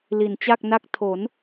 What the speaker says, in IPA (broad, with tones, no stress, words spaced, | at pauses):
li˩˦nt͡ɕa˥˩k̚na˥˩k̚ tʰo˩˦n